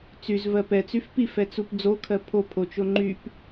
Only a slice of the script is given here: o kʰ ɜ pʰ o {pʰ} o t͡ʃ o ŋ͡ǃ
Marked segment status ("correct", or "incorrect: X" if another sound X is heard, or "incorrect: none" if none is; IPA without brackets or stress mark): correct